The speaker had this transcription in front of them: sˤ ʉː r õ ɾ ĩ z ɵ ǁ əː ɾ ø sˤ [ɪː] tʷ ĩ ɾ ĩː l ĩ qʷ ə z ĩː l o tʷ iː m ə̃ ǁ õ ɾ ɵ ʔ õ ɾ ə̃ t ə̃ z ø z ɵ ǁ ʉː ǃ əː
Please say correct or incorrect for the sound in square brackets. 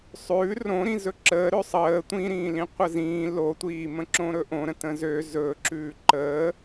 incorrect